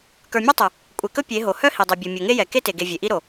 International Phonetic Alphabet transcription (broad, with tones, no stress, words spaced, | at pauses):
kə˞˨mʲe˦ tˤɵ˨ | kʷʼe˨kɵ˦ pʲe˨˦ ɦo˨ hœ˦ hi˨dˤe˨bʲo˨ mʲo˨ŋe˦jɛ˨ ke˦te˨ɡe˨ vʲe˨ʔi˦ɾo˨